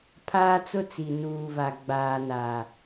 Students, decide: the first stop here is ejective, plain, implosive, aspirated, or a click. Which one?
aspirated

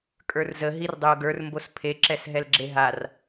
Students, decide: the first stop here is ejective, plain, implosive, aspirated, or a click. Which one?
ejective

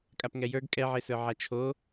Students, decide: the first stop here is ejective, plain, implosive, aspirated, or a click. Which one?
ejective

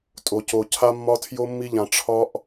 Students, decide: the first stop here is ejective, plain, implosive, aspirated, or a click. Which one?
ejective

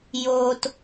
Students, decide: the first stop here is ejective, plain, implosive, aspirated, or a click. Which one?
plain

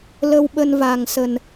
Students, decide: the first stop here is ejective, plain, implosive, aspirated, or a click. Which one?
implosive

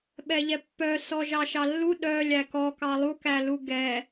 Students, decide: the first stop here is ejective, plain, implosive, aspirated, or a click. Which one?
implosive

